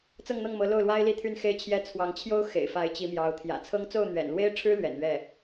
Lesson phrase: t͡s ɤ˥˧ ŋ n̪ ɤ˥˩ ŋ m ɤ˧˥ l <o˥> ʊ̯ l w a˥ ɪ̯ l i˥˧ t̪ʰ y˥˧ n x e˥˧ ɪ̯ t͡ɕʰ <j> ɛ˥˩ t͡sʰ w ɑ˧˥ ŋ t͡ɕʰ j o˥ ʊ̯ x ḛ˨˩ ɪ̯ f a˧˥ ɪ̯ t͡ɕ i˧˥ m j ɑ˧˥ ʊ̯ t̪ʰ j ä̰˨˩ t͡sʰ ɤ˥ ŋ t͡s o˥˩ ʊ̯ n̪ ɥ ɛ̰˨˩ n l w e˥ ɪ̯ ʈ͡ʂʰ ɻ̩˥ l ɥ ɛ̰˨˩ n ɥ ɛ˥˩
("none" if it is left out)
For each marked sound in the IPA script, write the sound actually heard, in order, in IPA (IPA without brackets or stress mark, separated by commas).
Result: o˥˩, j